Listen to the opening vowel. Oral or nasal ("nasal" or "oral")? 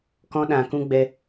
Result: nasal